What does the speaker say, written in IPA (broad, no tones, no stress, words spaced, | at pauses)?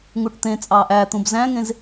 ŋuʈt̪ẽt͡sʼɑːʔ æ t̪ũbzæ̃ŋẽz